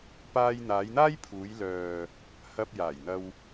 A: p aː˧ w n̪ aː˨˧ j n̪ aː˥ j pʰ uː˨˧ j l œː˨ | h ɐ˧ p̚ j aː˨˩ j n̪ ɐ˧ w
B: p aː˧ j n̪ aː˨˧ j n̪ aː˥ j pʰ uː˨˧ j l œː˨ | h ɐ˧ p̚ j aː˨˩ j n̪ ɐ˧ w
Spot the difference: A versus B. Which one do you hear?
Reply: B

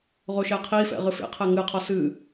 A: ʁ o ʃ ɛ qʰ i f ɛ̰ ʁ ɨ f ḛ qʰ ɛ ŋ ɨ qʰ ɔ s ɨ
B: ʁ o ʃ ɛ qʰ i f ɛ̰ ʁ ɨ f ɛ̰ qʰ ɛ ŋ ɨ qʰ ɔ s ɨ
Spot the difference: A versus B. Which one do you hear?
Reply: A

